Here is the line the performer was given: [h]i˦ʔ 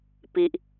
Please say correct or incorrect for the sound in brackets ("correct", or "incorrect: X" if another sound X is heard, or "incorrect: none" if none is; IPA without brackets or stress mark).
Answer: incorrect: p